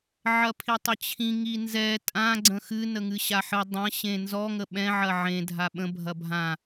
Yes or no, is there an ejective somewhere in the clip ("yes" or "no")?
yes